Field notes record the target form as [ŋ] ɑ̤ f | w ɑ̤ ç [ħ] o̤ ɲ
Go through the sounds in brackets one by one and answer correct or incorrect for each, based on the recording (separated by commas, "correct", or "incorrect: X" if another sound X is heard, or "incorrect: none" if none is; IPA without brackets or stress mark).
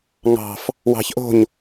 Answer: correct, incorrect: ʔ